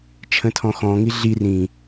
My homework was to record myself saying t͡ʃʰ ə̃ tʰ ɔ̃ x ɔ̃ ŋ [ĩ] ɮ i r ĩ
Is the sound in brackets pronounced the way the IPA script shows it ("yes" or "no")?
no